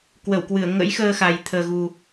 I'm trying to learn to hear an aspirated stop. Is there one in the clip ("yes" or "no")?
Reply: yes